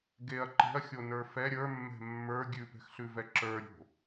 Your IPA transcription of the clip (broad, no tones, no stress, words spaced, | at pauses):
ɡeɐ̯ ǃe̤ɐ̯xʲonə˞ fɛ ɾʲə˞mːɛ̤ mːə˞ ɡʲʉpɛ̤xɬʉvɛ ǁə˞ɾʲo̤